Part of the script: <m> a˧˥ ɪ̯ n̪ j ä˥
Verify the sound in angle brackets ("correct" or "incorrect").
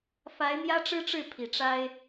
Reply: incorrect